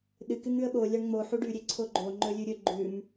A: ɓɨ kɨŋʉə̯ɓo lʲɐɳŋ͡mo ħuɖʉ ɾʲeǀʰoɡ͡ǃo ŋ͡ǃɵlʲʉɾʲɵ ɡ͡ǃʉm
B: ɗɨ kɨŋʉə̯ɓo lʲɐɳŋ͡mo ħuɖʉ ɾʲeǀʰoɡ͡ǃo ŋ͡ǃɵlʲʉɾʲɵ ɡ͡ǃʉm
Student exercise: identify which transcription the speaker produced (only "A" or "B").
B